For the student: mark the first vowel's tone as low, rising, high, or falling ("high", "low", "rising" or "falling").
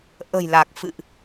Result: low